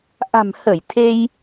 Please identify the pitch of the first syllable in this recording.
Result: low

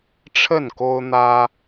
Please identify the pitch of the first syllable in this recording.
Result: falling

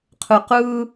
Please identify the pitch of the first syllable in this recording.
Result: low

